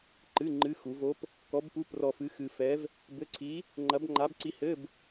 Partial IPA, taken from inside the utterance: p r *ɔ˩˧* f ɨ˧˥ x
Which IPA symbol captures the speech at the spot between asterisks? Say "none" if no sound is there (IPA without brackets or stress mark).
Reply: ɔ˧